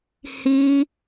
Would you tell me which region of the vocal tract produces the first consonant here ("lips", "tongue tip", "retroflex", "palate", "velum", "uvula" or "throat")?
throat